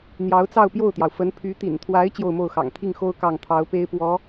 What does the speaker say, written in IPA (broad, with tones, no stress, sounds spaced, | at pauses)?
n̪ j ɑ˧˥ ʊ̯ t͡s ɑ˥˧ ʊ̯ p j o˥˩ ʊ̯ t̪ j ɑ˩ ʊ̯ f ə˧˥ n pʰ y˧˥ t̪ ḭ˨˩ n t̪ʰ w a˧˥ ɪ̯ t͡ɕ j o˥˧ ʊ̯ m o˥˩ ʊ̯ x ɑ̰˨˩ ŋ t̪ʰ i˥˩ ŋ x o˥ ʊ̯ k ɑ˥˩ ŋ t̪ʰ ɑ˧˥ ʊ̯ p e˥ ɪ̯ p w ɔ˧˥